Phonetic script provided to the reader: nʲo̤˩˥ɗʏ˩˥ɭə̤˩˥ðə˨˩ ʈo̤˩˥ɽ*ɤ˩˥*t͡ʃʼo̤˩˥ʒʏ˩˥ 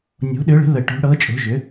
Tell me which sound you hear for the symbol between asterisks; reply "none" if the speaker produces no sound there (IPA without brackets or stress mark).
ɤ˩˥